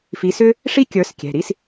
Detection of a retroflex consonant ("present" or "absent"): present